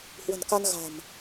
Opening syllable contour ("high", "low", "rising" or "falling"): low